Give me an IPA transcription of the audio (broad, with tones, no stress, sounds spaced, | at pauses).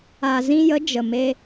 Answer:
a˨ z ĩ˧ j ə˨˦ d͡ʒ ə˨ m e˧